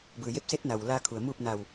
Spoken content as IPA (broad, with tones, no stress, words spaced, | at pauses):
bɯː˩je˧˥p̚ se˧˥t̚na˩w laː˧kʰu˩ə̯ muː˥˨p̚na˧˩w